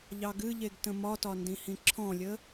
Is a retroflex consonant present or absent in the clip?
absent